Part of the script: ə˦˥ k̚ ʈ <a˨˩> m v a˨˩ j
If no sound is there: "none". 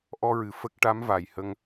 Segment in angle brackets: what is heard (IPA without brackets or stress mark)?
a˧˥